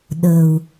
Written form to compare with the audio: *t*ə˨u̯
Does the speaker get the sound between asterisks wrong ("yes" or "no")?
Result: yes